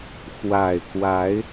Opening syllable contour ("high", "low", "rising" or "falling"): low